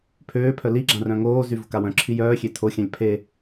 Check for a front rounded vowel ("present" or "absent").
present